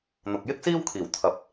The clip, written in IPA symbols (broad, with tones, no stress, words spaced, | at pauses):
n̪ʊ˨k̚jɪ˥k̚siː˥wkʰiː˨˩w t̪ʰɐ˨˥p̚